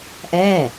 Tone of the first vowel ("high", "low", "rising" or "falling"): falling